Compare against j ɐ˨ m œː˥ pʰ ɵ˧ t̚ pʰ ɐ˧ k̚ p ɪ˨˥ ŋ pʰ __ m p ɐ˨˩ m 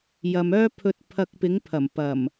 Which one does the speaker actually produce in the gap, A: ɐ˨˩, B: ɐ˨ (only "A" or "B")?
A